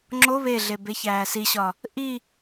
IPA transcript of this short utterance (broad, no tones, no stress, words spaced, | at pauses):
ŋ͡ǁo βeɮe beçæːsiɕɒ | ʔi